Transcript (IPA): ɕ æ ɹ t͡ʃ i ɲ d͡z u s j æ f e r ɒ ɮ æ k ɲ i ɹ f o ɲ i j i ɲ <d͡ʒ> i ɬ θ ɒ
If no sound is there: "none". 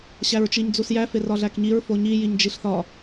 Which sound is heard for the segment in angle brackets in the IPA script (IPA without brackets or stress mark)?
d͡ʒ